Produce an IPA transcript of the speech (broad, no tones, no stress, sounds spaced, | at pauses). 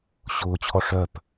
ɕ ʊː t͡ɕʰ ɔ ʂ œ p